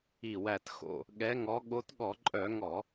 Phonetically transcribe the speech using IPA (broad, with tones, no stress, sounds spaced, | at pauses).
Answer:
i˧˩ w æ˧˩ t x o̰˧˩ | ɠ ɛ˨˦ ŋ ɔ˨˦ ɠ o˨˦ t ɠ ɔ˧˩˧ ǃʼ œ˧˩˧ ŋ ɔ˧˩˧